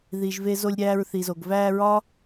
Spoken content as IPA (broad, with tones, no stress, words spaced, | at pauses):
ði˨ʒ ve˧zo˧lʲɾʲæː˧ɹ θi˨zo˨ɡ væː˧ɹɒ˦